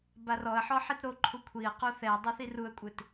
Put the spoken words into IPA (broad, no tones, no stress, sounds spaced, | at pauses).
b a r ɔ ə̯ ħ ɔ ħ i t ɾ o ǃʰ u kʷʰ i ə̯ q o θ ɛ ə̯ dˤ e θ i r u ə̯ kʷʼ ɪ t